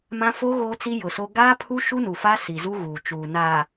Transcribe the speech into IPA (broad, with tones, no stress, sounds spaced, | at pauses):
m ã˦ f o˦ ɣ oː˦ t͡s i˦ j ʊ˨ s o˦ ɡ aː˦ pʰ u˦ ʃ u˦ n u˨ f a˦ s i˨ z u˦ ɣ uː˨ t͡ʃ uː˨ n aː˨